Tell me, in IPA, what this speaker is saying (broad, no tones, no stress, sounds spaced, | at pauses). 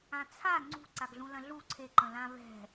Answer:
ã t͡sʰ a ŋ͡ǀ ṳ ǀ a ɡ ɮ ũ l ɐ̃ ɮ u ǀʰ e ǃ ə̃ l ã β ɛ̤